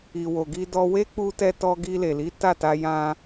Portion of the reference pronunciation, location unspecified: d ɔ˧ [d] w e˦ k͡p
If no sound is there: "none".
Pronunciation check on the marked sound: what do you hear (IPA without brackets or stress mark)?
none